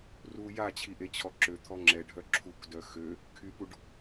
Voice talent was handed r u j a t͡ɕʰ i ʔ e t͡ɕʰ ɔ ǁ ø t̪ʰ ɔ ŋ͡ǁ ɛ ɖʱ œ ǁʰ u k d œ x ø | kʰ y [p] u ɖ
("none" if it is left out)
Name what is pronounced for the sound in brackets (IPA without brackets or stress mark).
p